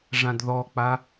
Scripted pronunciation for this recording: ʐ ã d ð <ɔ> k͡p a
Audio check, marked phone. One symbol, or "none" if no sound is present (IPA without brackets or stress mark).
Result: ɔ